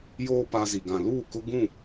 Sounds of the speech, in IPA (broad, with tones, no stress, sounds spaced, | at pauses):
j oː˦ p a˦ z i˨ ɡ ã˨ l uː˦˨ k ʊ˦ ɡ ũ˦˨